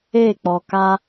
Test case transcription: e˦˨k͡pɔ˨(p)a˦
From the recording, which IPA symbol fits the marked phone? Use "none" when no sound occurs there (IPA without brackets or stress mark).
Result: k